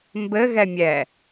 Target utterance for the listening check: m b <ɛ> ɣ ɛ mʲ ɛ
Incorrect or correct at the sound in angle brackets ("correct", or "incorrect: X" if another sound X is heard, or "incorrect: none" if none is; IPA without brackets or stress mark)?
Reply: incorrect: ɘ